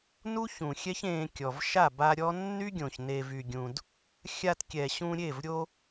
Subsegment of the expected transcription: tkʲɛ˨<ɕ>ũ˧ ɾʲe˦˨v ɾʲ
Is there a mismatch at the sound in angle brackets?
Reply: no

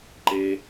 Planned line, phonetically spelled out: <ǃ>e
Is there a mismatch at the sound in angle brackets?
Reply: no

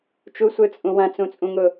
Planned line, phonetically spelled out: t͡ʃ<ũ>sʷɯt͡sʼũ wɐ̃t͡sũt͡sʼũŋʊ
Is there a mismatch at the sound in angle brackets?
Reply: yes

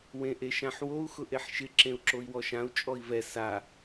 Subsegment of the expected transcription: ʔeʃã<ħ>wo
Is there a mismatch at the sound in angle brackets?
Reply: no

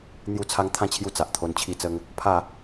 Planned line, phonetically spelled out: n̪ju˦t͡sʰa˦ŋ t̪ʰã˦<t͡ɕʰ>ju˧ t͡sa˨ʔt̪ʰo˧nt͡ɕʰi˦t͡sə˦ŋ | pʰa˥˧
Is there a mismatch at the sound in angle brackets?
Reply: no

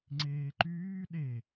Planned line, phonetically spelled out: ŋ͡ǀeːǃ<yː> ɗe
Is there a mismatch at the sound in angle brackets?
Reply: no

